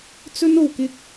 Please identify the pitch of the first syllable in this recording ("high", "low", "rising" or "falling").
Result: high